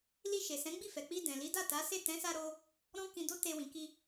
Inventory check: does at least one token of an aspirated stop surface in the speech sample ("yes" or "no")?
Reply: no